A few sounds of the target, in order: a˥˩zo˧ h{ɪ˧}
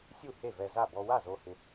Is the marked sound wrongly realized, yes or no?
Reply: no